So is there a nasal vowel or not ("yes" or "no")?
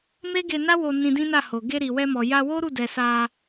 yes